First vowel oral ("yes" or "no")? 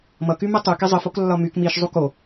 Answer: yes